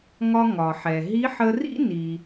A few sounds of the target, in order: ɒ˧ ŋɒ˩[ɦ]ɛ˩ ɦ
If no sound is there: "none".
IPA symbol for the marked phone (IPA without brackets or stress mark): ħ